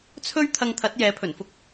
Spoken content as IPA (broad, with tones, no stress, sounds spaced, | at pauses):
t͡sʰ ɵ˥ ɥ t̪ʰ ɐ˧ ŋ t̪ʰ ɐ˨˥ t̚ j ɛː˨˥ pʰ ɵ˨˩ n f ʊ˥ k̚